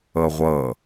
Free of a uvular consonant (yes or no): no